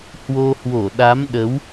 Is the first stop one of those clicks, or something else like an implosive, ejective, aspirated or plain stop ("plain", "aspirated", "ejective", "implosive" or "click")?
implosive